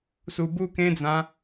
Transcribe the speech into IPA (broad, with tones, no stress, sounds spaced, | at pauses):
s u˨˩ b u˥˧ k ẽ˦ d͡z ã˨˦